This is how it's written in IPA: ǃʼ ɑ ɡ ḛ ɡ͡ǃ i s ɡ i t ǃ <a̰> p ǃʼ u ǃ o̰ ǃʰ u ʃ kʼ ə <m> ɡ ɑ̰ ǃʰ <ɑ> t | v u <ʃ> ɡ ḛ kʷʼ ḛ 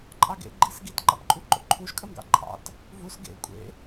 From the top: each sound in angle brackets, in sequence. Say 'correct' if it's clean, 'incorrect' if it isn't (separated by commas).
incorrect, correct, incorrect, incorrect